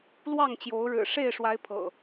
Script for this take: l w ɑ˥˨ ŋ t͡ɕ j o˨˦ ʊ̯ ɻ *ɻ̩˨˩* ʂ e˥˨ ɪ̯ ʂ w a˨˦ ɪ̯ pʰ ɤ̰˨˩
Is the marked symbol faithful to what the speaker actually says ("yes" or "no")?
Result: yes